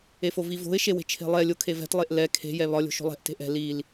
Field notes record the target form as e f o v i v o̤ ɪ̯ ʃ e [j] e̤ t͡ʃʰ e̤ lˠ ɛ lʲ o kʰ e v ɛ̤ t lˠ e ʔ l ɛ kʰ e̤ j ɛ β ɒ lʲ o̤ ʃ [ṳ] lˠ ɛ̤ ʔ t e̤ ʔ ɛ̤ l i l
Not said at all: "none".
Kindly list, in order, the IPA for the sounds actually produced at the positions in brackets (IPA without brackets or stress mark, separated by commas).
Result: w, o̤